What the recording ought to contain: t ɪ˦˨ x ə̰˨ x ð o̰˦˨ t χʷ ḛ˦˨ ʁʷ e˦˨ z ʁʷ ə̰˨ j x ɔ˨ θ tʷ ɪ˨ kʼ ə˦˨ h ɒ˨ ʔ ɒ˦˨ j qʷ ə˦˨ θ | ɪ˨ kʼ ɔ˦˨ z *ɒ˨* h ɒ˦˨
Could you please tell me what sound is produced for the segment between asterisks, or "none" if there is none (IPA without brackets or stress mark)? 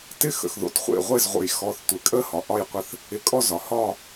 ɒ˨